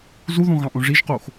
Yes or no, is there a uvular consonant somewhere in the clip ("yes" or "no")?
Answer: yes